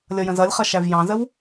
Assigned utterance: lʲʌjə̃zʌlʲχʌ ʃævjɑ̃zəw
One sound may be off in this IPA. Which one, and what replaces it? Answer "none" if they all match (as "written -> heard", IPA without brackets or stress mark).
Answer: none